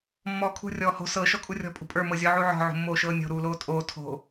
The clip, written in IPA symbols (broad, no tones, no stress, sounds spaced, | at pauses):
mː ɔː kʰ ṳ rʲ ɔː h o̤ s ɤ ʃ ɔ kʼ u rʲ ɔ̤ pʼ ṳ pʼ ə˞ m ɤ zʲ ɔ ʕ u ʕ ɔ̤ ʕ o̤ mː oː ʃ ɤː nʲ o̤ ɾ uː l oː tʼ oː tʰ o̤